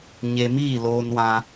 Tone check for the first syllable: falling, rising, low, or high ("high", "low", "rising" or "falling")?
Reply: low